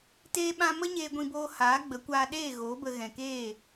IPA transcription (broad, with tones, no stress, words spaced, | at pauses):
teː˦ɓã˦ mə˦ɲeː˧ɡʷĩ˧boː˧ haː˨˦ɡ͡bə˨˦kʷaː˧ ɗeː˦˨ɣoː˨˦bə˧ ɣɛ̃˨keː˦˨